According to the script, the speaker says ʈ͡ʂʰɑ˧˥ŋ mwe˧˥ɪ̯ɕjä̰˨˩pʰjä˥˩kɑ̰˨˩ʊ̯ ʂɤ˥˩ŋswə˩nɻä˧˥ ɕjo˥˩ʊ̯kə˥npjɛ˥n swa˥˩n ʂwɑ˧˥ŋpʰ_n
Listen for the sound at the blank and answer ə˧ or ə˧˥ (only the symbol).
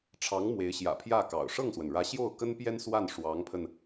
ə˧